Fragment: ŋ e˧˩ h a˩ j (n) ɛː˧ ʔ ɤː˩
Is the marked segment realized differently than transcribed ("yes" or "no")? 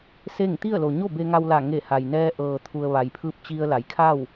no